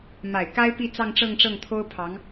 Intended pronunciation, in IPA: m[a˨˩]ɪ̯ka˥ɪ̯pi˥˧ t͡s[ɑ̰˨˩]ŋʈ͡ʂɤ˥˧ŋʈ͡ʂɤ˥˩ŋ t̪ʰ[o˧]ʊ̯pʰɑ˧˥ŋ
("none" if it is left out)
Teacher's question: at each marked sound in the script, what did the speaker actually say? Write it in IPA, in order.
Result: a˨˩, ɑ˥˧, o˥

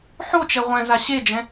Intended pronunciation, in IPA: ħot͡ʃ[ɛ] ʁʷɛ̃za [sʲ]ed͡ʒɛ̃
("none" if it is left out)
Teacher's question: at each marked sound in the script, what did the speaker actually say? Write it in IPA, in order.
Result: ɛ, ɕ

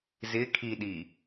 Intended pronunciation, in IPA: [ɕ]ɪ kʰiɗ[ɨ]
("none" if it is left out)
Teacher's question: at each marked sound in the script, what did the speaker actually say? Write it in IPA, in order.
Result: z, i

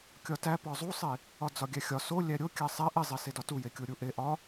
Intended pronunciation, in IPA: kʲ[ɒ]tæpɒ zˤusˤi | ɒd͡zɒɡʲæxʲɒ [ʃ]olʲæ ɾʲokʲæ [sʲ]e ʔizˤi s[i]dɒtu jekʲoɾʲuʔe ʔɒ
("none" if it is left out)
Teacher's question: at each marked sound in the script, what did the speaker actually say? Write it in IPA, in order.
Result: ɒ, s, sˤ, e

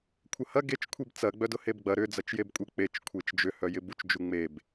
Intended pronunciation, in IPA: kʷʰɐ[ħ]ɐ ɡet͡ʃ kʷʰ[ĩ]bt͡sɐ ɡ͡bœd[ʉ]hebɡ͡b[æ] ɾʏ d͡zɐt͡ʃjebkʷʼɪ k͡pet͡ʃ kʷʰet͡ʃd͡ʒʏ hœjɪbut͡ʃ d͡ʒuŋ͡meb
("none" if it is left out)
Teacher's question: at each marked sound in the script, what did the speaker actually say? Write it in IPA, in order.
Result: h, i, ʊ, ɐ

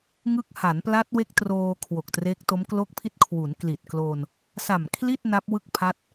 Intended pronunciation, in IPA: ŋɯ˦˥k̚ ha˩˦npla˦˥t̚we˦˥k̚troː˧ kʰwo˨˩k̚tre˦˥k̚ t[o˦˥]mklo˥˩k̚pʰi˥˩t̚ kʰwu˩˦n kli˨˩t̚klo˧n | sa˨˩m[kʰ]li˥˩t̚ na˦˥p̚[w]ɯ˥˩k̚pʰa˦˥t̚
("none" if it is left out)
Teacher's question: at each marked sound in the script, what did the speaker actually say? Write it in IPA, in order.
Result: o˦˥, kʰ, w

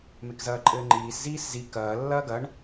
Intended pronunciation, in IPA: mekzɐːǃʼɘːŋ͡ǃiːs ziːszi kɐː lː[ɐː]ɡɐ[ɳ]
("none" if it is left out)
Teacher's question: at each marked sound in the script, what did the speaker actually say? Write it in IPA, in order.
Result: ɐː, ɳ

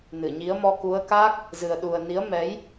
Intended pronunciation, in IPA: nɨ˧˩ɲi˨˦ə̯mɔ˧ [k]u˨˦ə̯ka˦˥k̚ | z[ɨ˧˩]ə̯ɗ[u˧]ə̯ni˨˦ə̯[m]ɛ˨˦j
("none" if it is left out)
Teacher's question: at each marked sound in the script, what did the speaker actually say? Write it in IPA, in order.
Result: k, ɨ˨˩, u˨˩, m

